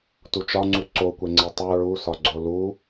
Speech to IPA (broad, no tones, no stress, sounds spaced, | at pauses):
t u t͡ʃ ɒ ŋ͡ǀ u ǀ o kʷ e ŋ͡ǀ e tˤ u ɹ u s ɒ ɡ͡ǀ o l u